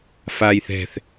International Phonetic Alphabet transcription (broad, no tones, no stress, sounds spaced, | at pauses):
f aː j θ ɛ̤ θ